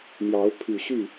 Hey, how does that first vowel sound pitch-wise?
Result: rising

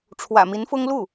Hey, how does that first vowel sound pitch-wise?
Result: low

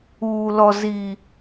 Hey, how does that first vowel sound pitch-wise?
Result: low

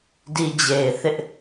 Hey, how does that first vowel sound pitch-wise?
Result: low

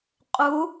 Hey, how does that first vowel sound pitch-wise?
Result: rising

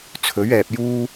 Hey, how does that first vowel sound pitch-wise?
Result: rising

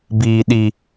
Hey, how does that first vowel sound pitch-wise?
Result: high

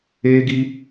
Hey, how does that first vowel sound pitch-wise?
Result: high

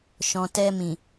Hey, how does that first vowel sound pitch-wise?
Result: low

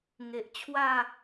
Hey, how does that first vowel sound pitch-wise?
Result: low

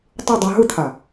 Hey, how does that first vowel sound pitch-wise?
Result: falling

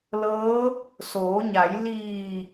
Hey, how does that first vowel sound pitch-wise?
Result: rising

